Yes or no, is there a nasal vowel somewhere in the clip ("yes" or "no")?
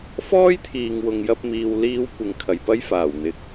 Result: no